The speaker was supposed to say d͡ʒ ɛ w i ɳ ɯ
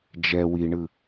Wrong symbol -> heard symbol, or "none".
none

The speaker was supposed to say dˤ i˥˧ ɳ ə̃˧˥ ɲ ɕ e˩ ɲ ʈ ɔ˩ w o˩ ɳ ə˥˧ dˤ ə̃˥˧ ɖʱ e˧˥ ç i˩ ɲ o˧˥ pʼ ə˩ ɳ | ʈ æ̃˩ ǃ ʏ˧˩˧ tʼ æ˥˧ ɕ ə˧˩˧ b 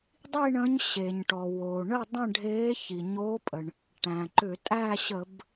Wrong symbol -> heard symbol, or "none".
none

